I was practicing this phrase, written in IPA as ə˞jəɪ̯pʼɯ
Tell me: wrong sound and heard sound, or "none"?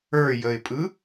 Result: none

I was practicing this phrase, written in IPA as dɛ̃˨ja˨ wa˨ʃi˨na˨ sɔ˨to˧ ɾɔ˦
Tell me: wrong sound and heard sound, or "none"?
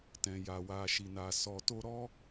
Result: d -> t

